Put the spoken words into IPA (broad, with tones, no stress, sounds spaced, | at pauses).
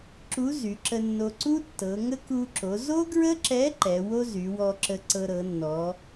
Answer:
ǁ u˧˥ z y˩˧ ǁ ə˧ nː o˧ ǀ u˥ tː ɤ˩˧ ŋ ə˥ k u˧ ǁ o˩˧ z o˥ ɡ ɹ ə˥ ǁ ɛ˧˥ ǃ ɛ˩˧ w o˥ z y˩˧ w ɔ˧ ǁ ə˧ ǀ ɤ˧ ɾ ɤ˩˧ nː ɔ˩˧